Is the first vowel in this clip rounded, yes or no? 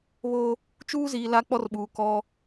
yes